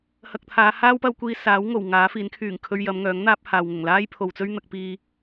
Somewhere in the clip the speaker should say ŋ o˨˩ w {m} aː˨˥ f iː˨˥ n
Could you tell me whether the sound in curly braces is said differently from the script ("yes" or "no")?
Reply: yes